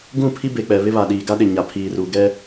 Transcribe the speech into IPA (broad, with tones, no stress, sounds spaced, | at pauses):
ɡ ũ˦˨ pʰ i˦ b e˨ k͡p ɛ˨ β ɪ˦ β a˨ ɗ iː˨ ɡ a˦ ɗ ɪ˨ ɲ a˨ pʰ iː˨ r u˨ ɡ ɛ˦